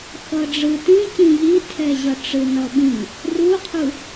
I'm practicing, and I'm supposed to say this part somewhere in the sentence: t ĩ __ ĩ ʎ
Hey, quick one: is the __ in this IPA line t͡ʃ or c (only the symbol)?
c